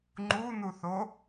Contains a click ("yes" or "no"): yes